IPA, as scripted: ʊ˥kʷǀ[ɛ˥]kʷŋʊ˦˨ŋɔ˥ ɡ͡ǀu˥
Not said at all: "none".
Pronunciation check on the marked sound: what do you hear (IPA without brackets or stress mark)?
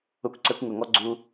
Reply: ɛ˥